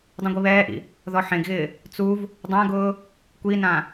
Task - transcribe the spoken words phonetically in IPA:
dˤ ũ ɡʷ i β ɛː ʔ ḭ | ð ɔ ħ ẽ ɡ ɣ ɪː | t͡s u v | dˤ ã ɡ ʊː | kʷ i n ã

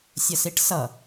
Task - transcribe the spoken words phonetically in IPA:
sʲ ʌ s i ʈ s ʌ

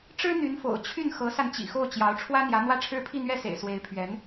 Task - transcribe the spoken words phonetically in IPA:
ʈ͡ʂ ɻ̩˥ n̪ y˧˥ n f o̰˨˩ ʊ̯ t͡ɕʰ y˥˩ n x ɤ˧˥ s a˧ n t͡ɕ ḭ˨˩ x o˥˩ ʊ̯ t͡ɕ j ɑ˧˥ ʊ̯ ʈ͡ʂʰ w ä˥ n̪ j ä˧˥ n̪ w ä˥˧ ʈ͡ʂʰ ɻ̩˥˧ pʰ i˥˧ n̪ ɥ ɛ˥˩ s ḛ˨˩ ɪ̯ s w e˧˥ ɪ̯ pʰ ɥ ɛ˧˥ n

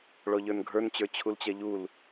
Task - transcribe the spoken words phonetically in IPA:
ɭ ɔ ʎ ə˞ n ɡʱ ə˞ n t͡ɕ ə˞ t͡ɕʰ u l t͡ɕ ɛ ʎ u l

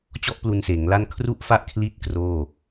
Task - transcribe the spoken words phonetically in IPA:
t͡ɕ ɔ˦˥ ʔ p l u˧ n s eː˩˦ ŋ l a˥˩ n kʰ r u˥˩ ʔ f a˥˩ ʔ kʰ l i˦˥ t̚ k r oː˥˩

